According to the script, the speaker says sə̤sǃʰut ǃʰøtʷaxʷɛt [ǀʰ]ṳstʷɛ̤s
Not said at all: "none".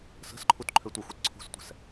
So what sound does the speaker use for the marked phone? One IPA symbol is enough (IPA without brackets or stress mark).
ǀʰ